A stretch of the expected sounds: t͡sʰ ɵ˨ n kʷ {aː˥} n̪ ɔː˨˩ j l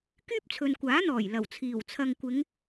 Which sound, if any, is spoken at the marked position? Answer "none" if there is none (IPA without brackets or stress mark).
aː˨˥